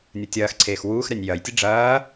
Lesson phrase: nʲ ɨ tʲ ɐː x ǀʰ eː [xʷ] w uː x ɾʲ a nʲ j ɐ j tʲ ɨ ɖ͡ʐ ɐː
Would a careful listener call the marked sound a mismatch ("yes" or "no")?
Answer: yes